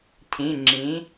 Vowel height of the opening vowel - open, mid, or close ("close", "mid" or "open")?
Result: close